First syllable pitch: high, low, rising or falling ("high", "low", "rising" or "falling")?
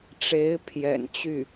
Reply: rising